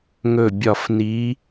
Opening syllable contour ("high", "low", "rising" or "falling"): falling